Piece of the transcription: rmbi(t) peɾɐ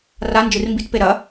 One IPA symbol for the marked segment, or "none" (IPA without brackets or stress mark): t